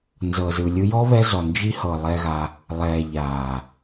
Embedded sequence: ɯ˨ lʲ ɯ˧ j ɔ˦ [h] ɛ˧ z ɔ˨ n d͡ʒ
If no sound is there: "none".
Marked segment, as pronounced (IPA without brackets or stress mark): β